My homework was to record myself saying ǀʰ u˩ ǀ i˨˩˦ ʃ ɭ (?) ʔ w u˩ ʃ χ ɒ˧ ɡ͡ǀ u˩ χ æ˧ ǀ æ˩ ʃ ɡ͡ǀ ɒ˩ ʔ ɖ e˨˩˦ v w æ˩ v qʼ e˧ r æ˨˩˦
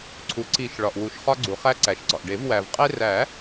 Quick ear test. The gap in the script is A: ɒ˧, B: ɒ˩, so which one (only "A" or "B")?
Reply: B